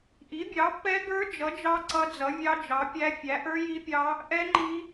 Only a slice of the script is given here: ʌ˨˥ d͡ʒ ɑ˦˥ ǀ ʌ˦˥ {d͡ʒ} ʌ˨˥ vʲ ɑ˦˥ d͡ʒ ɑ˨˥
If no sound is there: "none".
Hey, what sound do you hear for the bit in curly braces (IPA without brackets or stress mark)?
d͡z